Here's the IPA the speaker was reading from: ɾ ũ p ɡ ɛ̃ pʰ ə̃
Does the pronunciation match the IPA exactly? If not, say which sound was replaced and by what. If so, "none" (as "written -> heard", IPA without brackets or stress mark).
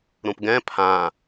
ə̃ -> ã